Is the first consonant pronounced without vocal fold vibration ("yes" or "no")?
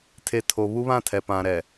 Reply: yes